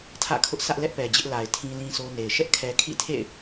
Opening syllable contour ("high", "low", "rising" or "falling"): falling